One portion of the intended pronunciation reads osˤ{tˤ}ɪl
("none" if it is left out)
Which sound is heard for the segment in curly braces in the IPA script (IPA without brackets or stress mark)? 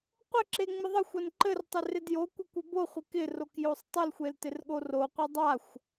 tˤ